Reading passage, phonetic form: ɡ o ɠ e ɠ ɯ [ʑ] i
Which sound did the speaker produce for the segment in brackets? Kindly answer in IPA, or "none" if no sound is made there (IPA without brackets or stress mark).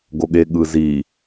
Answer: z